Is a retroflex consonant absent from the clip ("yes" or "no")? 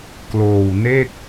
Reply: yes